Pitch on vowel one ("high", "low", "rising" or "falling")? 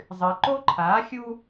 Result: low